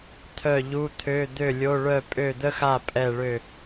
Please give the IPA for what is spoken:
t̪ʰ œ˥˨ ʎ u˧˥˧ t̪ʰ ø˧˥˧ d̪ ø˥˨ lʲ o˧˥˧ ɭ œ˥˨ pʼ ø˥˨ d̪ ə˥ x a˥˨ pʼ ɛ˥˨ ɭ ø˥˨

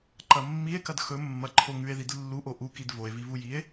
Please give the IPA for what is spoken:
ǃ ɐ mː i e̯ k ɐ d x ɵ mː ɐ ǃʰ o ŋ ʉ e̯ ð i d lː u ʔ o ʔ u k i d v o e̯ v i v u j i e̯

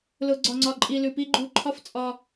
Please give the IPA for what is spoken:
l ʊ˧ ɡ͡ǀ ɒ˧ ŋ͡ǀ ɒ˧ ǃʼ i˧ l ʉ˨ p i˦ ɡ͡ǃ u˧ ǃʰ ɒ˦ f t͡sʼ ɒ˧

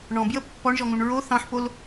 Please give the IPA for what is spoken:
ɳ ɔ̃ b j ə pː ɔ ɳ ʒ ɔ ŋ ũ ɳ ɹ o θ ɑ̃ ħ p o l

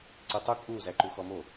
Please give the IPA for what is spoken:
ǀ e tˤ u kʼ u z æ ǃ u x ɔ m o

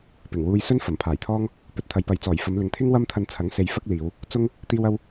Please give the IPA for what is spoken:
p ɪ˨˩ ŋ w uː˧ j s ɵ˥ n f ɐ˨˩ m pʰ aː˨˩ j t̪ʰ ɔː˥ ŋ | p ɵ˨ t̚ t̪ʰ ɐ˧ j p ɐ˧ j t͡s ɔː˨˩ j f ɐ˨˧ m l ɪ˨ ŋ t̪ʰ ɪ˥ ŋ w ɐ˥ m t̪ʰ ɐ˧ n t͡sʰ ɐ˨˥ ŋ s e˨˧ j f ɐ˥ k̚ l iː˨˧ w | t͡s ʊ˥ ŋ | t̪ iː˥ w ɐ˥ w

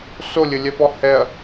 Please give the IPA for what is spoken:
s o lʲ ɘ lʲ ɛ p ɔ h ɛ ɐ̯

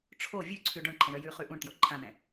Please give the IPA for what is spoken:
ʈ͡ʂʰ o vʲ ʉ ǀʰ ʉ ɖ õ ɳ ǃʰ ɛ̃ ɳ œ j ʉ χ ʉ ʔ ũ ɳ t j o ǃʰ ã n ɛ̃

